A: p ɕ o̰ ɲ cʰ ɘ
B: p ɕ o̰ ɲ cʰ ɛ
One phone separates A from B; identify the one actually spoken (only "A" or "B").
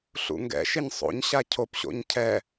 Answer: B